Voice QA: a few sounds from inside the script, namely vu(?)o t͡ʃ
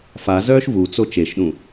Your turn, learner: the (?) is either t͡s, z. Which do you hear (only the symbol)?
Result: t͡s